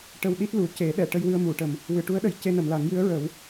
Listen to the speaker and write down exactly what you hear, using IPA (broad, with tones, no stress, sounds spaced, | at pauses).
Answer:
ʈ ə˧ w ɗ i˦˥ t̚ l u˨˩˨ c e˨˩˦ ɗ ɛ˨˩˨ ʈ ə˧ j w ɨ˧ ə̯ m u˨˩˨ ʈ ə˨˩ m | w ɨ˨˩˨ ʈ u˧˥ ə̯ ɗ ə˨˩˨ j c e˧ n ə˨˩˨ m l a˨˩˦ ŋ j ɨ˧˥ ə̯ ɹ ə˨˩˦ w